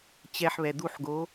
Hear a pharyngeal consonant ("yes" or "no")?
yes